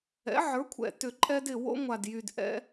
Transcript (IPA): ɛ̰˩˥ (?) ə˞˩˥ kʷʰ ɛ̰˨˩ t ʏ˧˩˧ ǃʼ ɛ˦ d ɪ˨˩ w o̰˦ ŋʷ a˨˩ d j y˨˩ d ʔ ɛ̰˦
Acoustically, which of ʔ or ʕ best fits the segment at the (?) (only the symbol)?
ʕ